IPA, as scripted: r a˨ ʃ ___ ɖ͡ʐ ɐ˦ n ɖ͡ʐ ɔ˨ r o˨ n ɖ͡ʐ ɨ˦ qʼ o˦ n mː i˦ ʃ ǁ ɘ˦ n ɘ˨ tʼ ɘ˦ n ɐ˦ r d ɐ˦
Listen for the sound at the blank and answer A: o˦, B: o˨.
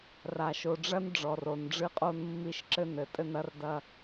B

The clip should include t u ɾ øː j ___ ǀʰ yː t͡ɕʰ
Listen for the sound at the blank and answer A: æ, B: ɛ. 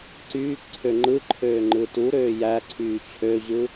A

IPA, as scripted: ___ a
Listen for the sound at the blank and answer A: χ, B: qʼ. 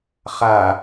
A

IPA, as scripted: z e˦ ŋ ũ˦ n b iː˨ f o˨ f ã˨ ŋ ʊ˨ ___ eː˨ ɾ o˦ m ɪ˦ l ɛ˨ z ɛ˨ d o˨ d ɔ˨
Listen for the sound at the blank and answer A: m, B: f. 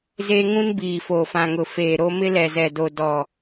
B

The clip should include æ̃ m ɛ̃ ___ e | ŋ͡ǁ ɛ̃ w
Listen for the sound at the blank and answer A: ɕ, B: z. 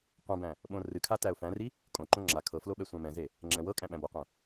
B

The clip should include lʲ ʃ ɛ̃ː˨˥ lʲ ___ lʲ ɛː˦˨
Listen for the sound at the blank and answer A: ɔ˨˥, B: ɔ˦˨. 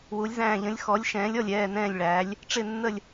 B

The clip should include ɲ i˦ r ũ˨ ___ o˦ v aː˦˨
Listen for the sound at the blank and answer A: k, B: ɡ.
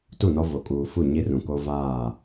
A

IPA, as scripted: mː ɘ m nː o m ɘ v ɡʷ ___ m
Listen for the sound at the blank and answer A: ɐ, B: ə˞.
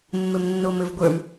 B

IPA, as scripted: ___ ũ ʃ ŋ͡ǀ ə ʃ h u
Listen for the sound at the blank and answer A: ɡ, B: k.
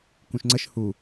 B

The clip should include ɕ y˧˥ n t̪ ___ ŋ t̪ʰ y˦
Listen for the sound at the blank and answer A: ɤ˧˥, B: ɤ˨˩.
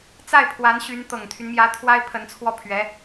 B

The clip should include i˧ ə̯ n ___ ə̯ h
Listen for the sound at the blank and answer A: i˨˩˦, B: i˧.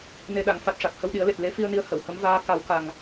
B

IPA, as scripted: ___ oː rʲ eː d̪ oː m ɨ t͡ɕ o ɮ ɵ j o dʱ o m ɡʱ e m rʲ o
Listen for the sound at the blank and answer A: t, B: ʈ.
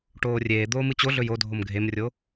B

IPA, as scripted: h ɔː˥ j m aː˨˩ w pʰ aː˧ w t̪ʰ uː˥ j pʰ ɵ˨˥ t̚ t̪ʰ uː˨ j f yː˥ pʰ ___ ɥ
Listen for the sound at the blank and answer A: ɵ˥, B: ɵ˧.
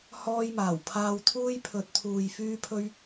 A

